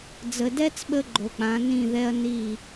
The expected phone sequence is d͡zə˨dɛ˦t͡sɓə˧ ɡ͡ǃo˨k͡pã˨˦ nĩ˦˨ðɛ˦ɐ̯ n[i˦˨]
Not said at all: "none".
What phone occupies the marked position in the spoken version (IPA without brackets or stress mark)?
i˦˨